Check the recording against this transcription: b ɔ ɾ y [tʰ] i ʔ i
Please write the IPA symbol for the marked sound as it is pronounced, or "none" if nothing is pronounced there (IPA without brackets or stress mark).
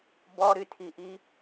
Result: tʰ